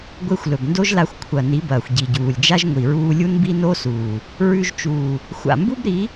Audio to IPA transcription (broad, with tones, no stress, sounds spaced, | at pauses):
ɡʷ e˧ xʷ l ɵ˨ b n d o˦ ʒ l a˧ xʷ kʷʰ ɐ˨ n i˨˦ b ɐː˨ xʷ ɟ i˨ ɟ uː˨ lʲ d͡ʒ a˦ ʒ ŋʷ i˨ ɹ uː˧ lʲ u˦ n b i˦ n o˦ s uː˨ | ɹ ʉ˧ ʒ t͡ʃ uː˨ | xʷ a̰˨ m b u˦ b ɾ i˨˦